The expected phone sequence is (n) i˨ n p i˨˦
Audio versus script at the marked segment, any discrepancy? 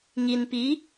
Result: yes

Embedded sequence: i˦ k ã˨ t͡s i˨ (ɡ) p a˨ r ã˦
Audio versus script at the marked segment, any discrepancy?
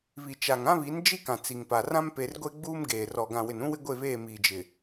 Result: yes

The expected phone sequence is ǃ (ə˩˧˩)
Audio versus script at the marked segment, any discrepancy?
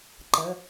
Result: no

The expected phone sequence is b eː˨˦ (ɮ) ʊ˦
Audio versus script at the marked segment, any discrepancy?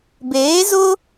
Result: yes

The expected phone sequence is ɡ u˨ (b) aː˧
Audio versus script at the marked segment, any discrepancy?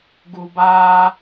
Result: no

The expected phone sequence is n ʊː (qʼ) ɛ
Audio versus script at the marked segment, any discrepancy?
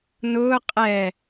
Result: no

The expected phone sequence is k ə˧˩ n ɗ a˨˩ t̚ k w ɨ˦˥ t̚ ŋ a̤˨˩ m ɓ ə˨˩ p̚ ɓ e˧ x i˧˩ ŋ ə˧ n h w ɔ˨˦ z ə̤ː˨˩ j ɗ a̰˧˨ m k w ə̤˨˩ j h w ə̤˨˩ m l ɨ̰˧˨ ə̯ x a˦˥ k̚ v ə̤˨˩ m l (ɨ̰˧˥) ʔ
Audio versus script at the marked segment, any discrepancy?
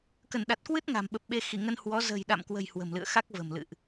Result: yes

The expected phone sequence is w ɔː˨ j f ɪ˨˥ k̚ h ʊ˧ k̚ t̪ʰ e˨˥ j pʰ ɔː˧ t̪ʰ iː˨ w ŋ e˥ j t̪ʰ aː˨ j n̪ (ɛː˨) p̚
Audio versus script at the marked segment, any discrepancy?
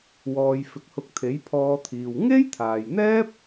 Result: yes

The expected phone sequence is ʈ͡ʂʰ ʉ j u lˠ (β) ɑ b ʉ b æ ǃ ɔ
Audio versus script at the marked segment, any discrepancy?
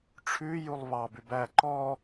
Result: no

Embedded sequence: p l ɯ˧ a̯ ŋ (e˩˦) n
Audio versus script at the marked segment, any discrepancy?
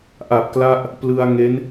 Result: yes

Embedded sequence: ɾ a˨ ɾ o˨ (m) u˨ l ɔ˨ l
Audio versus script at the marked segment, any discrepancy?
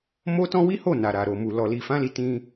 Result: no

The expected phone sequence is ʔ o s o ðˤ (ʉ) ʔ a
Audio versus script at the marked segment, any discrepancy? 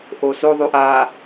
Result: no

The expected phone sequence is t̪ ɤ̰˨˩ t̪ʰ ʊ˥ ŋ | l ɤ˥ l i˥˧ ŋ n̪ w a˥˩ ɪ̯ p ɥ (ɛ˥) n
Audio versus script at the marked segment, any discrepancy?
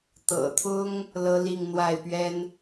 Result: no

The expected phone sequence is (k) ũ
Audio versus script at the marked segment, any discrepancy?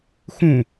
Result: yes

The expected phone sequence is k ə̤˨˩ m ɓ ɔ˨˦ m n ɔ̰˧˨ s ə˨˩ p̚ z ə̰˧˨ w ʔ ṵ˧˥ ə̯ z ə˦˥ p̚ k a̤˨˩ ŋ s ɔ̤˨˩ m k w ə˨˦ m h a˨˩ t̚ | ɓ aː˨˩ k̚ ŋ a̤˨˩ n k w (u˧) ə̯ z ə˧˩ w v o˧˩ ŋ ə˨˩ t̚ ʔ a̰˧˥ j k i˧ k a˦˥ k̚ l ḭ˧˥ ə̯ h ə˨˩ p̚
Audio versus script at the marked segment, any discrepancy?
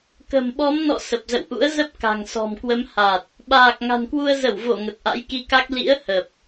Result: no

